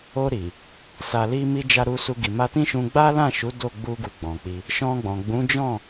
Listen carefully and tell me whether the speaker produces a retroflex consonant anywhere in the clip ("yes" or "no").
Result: no